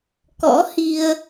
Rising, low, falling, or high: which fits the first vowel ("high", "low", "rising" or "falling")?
rising